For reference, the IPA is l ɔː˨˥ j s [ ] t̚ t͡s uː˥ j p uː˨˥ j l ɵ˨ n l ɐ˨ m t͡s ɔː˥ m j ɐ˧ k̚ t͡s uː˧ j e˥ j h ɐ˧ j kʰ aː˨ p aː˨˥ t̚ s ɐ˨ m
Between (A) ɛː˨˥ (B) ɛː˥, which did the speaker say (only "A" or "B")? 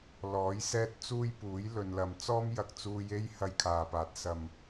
B